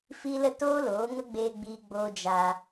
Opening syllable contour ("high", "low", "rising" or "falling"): high